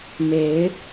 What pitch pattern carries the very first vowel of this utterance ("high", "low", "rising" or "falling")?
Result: rising